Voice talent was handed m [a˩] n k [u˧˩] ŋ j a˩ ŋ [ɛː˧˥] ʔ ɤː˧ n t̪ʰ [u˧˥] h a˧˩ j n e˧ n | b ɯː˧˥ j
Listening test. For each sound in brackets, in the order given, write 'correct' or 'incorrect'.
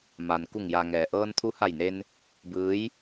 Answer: correct, correct, incorrect: ɛː˩, correct

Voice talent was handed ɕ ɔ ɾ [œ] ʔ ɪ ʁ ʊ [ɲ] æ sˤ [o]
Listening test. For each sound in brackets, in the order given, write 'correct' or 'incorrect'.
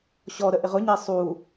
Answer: incorrect: ə, correct, incorrect: u

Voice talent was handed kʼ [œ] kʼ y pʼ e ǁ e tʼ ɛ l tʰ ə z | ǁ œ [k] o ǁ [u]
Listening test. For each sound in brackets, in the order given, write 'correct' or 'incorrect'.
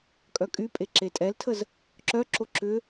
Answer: correct, incorrect: ǁ, incorrect: ʏ

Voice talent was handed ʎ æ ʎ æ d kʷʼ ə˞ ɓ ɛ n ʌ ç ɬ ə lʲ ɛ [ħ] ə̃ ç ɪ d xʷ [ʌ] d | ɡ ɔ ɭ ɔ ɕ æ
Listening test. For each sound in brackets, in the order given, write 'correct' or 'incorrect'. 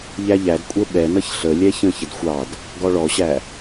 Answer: incorrect: ç, incorrect: ɑ

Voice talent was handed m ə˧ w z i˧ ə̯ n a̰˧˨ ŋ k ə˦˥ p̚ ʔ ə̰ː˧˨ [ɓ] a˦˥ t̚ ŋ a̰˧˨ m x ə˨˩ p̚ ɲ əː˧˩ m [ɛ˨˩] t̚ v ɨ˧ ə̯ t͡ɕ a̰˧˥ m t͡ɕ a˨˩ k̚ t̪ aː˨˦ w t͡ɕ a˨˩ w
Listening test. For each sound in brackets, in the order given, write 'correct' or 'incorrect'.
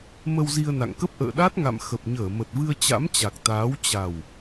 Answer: incorrect: ɗ, incorrect: ə˨˩

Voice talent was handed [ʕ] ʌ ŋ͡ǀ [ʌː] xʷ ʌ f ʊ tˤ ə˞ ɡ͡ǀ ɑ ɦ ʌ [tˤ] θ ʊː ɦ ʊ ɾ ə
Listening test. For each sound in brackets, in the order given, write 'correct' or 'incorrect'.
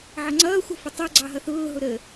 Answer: correct, correct, incorrect: none

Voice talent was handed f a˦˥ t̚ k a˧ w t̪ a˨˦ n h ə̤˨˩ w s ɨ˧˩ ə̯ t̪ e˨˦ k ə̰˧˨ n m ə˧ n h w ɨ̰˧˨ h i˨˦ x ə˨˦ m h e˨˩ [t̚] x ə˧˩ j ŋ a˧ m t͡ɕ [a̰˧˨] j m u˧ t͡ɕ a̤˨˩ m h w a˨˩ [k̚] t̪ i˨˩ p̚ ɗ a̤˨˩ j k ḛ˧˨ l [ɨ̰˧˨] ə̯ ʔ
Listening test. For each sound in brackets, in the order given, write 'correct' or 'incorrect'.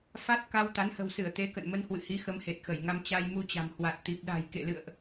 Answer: correct, incorrect: a˧, incorrect: t̚, correct

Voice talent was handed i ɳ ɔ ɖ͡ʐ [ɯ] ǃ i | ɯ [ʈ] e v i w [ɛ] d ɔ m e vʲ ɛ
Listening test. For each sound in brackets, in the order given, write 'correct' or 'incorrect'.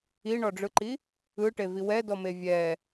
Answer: correct, correct, correct

